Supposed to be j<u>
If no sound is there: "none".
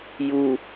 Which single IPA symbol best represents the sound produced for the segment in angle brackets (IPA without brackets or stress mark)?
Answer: u